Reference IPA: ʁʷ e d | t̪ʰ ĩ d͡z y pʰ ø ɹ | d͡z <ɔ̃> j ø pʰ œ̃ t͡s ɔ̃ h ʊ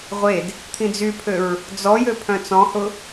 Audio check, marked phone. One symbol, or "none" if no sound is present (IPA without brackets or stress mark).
ɔ